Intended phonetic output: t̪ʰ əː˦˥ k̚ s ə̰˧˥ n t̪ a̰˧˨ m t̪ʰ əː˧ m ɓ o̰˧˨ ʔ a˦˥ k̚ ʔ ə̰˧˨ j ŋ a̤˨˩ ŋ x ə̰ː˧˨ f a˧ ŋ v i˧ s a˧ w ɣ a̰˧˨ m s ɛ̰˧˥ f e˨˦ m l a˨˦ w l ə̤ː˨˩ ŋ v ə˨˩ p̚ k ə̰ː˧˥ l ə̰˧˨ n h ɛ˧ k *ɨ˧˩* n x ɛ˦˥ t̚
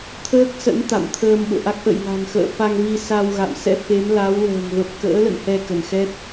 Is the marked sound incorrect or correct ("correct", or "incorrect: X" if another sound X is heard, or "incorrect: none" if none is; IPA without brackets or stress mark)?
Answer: incorrect: ə˧˩